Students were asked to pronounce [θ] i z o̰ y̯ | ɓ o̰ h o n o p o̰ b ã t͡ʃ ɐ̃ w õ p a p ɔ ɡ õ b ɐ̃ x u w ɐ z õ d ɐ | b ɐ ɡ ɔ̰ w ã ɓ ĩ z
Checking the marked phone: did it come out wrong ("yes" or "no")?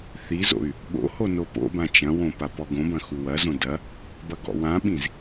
no